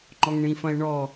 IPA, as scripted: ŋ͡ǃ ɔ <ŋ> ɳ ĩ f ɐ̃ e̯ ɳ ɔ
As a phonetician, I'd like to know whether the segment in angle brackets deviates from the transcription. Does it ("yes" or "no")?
no